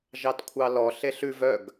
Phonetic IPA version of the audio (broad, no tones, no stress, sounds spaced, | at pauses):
ʒ ɑ t kʷʰ ɑ l ɔ ɬ e ɬ ʉ v œ ɡ